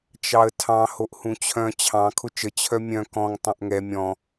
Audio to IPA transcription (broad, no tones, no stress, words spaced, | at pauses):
t͡ʃɑə̯tʰɑ̃ hoʔhũt͡ɕʰœ̃ t͡ɕʰɑ̃ kʰʊt͡ʃə t͡ɕʰœmʲœ̃ kɔ̃ŋ tˤœ̃ʔŋɛ mʲɔ̃